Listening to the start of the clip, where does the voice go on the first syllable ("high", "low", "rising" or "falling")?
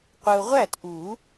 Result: low